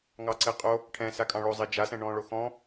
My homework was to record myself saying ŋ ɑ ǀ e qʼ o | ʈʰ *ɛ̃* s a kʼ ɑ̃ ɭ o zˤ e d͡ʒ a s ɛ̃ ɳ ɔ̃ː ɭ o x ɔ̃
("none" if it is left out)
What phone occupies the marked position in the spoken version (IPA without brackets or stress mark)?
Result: ɛ̃